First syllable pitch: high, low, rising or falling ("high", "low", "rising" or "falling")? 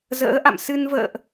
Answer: rising